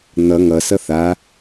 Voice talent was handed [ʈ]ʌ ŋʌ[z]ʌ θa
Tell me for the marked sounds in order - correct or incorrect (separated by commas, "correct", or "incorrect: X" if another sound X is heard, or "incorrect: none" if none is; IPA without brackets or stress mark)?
incorrect: n̪, incorrect: s